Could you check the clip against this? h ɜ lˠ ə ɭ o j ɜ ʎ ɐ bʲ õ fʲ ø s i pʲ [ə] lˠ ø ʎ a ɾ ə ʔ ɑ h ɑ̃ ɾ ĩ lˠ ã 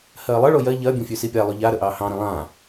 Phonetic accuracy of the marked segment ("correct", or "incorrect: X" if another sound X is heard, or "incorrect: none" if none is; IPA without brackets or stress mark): incorrect: a